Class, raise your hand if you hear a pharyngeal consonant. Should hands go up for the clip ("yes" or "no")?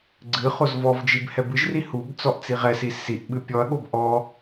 no